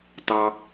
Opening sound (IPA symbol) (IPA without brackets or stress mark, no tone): t